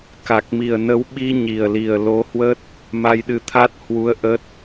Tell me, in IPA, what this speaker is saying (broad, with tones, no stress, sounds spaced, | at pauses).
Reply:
k a˨˩ k̚ m i˨˩ ə̯ n ə˨˦ w ɓ i˧ ɲ i˨˩ ə̯ l i˨˩ ə̯ l o˨˦ h w ə˦˥ t̚ | m a˧ j ɗ ɨ˧ t̪ʰ a˦˥ t̚ h w u˧ ə̯ ʔ ə˦˥ t̚